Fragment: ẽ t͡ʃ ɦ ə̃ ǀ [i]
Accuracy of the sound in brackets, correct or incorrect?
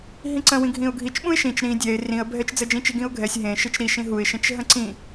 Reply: incorrect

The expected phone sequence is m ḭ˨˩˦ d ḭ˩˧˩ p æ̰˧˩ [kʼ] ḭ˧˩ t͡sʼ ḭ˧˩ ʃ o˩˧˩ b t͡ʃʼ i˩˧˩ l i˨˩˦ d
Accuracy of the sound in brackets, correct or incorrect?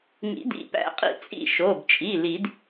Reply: incorrect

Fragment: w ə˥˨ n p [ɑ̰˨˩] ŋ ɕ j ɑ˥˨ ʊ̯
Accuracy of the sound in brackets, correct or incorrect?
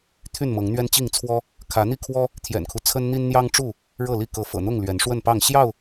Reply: incorrect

